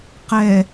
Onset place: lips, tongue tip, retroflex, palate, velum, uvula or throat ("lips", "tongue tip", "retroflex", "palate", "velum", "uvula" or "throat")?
uvula